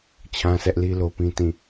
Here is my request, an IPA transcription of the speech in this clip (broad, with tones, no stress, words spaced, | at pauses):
t͡ɕʰã˦sʰɛ˦ʔli˦ lo˦pĩ˦tĩ˦˨